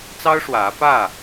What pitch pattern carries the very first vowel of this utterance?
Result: high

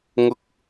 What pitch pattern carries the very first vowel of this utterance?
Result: high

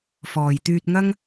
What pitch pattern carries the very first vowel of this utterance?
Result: low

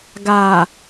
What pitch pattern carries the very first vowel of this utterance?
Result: low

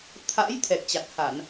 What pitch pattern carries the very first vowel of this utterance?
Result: rising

